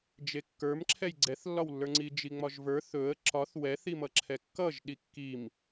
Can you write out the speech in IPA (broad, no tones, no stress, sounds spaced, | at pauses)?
d͡ʒ e kː ə˞ m ǁʰ ɛ j ɡ͡ǀ ɛ θ lː ɒ w lː ə˞ ŋ͡ǀ i d͡ʒ i ŋ͡m ɒ ʒ v ə˞ θ ɵ ə̯ ǁ ɒ θ w ɛ θ i m ʌ ǁʰ ɛ kː ʌ ʒ ɗ i kː i m